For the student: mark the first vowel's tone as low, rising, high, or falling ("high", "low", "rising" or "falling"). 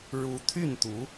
rising